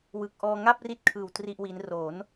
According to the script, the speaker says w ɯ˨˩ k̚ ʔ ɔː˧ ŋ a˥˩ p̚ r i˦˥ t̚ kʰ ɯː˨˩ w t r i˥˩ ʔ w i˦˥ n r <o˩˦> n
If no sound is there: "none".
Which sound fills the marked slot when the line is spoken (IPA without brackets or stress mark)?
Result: o˩˦